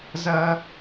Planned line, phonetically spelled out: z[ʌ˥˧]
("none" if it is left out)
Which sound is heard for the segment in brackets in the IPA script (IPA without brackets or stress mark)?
ʌ˧